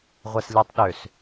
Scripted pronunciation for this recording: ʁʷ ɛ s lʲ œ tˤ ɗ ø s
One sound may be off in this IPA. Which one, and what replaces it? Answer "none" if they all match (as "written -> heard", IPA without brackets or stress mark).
œ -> ɛ